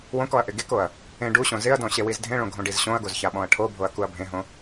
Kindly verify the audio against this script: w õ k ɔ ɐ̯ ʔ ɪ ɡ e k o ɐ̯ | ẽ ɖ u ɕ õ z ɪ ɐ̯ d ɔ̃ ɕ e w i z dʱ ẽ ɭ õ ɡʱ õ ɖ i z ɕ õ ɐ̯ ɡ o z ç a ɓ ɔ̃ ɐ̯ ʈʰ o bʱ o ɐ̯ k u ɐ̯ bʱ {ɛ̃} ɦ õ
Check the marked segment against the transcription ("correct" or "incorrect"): incorrect